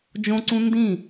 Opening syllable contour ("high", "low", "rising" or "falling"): high